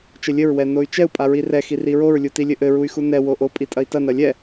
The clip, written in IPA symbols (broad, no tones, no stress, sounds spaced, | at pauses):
t͡ʃ ɘ lʲ ɘ ɹ w ɛ n o y̯ t͡ʃ ɛ u̯ pʼ a ɹ i r ɛ x i r i ɹ o ɹ lʲ u t i lʲ ɘ ʔ ɘ ɹ u y̯ x u n ɛ w o ʔ o pʼ i tʼ ɐ i̯ t ɐ n ɐ lʲ ɛ